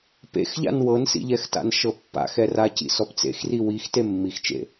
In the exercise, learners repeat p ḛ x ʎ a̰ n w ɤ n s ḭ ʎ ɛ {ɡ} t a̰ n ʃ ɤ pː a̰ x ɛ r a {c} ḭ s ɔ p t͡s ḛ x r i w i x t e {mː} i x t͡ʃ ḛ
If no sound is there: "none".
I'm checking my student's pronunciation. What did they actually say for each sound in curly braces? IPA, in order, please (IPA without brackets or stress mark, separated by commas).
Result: x, c, mː